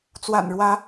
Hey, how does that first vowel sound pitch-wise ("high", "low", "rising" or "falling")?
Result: low